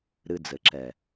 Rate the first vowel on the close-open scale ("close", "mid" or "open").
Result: close